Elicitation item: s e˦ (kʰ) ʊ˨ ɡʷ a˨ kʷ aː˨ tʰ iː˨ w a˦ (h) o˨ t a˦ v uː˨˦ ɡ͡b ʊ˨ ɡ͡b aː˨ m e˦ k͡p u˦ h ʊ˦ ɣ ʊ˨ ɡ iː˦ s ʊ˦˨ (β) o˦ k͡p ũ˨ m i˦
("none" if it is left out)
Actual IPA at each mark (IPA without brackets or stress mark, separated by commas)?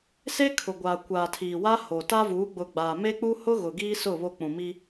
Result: kʰ, h, β